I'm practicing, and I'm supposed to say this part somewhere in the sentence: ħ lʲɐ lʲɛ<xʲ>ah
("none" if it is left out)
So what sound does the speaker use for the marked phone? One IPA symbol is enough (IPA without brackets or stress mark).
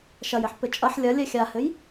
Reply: xʲ